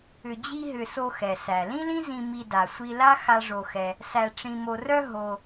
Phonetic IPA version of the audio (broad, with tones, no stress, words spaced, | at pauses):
ʏ˧d͡ʑi˥ɦʏ˧ so˧xɛ˩ sæ˩lĩ˥lĩ˥zĩ˧ mi˧da˩sʷi˧la˥ xa˥ʐo˧xɛ˧ | sæ˧ʈ͡ʂĩ˧mo˧rœ˥ ɦo˧